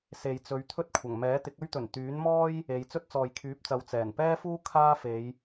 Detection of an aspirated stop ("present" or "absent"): present